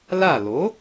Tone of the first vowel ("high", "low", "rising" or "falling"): falling